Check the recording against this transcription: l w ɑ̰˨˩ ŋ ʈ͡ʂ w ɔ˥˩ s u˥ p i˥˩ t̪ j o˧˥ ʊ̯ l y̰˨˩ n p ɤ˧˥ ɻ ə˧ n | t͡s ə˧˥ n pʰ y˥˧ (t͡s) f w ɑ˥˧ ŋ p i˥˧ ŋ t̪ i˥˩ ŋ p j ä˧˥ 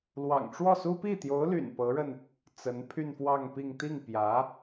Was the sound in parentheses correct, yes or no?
no